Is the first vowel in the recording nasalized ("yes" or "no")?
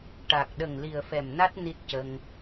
no